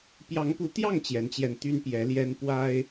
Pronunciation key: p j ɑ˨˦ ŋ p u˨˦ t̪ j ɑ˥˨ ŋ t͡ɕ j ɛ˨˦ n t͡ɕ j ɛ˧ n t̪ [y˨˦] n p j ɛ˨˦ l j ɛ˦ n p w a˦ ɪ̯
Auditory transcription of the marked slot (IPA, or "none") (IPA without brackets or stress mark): y˦